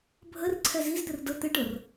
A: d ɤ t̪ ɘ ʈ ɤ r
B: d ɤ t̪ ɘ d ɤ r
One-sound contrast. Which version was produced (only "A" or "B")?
A